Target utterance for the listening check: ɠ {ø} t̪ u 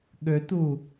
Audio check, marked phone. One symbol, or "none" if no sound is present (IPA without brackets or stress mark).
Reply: ø